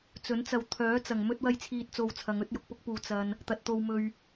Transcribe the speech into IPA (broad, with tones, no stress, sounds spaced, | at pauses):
t͡s ɵ˨˥ n t͡s ɐ˧ w t̪ʰ œː˨˥ t͡s ɐ˨ ŋ m ɵ˥ t̚ w ɐ˥ j t͡sʰ iː˧ t̚ t͡s o˧ w t͡sʰ ɐ˨˧ ŋ ɵ˨˥ t̚ j ʊ˨˥ k̚ p ʊ˥ k̚ p uː˧ t͡s ɐ˥ n | t̪ ɐ˨ t̚ t̪ o˧ w m ɵ˧ ɥ